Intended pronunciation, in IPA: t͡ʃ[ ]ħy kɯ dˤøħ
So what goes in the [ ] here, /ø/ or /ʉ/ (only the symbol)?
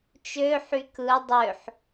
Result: ø